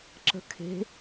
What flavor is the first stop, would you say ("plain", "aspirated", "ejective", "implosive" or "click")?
click